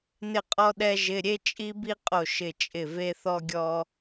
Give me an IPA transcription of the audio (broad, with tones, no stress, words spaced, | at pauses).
nɪ˥˨qʼɔ˥ɗɛ˥ʒɪ˧˥˧ ɾʲe˥t͡ʃʼi˥bi˥ qʼo˥˨ʃɪ˥˨t͡ʃʼɪ˥˨ ve˥θɔ˥ɡʲɔ˥